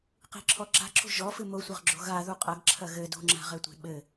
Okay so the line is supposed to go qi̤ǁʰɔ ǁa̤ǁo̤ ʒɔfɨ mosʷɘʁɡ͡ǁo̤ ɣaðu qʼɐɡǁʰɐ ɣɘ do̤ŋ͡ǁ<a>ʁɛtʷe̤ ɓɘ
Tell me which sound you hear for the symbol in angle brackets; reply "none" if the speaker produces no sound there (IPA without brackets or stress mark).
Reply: a̤